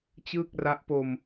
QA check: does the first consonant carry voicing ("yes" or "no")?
no